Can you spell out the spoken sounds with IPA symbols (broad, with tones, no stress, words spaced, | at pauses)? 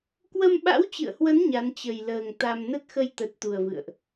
kwə˧mɓa̰˧˥wt͡ɕɨ̰˧˨ə̯hwə˨˦n ɲa˨˦nt͡ɕə˨˩jləː˨˩ŋ t̪a˧m nə˦˥t̚xə˧jt̪ə˨˩t̚ t̪u˨˩ə̯vɨ̰˧˨ə̯ʔ